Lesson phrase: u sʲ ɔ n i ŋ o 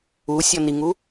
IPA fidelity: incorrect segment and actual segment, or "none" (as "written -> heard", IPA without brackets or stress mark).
o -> u